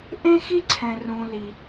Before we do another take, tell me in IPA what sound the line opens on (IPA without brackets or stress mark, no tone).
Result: ʔ